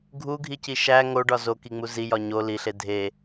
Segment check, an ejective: absent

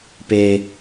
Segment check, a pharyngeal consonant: absent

